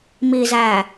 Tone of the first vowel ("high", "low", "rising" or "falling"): low